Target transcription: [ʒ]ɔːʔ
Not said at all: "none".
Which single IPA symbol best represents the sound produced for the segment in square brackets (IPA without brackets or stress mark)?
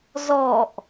z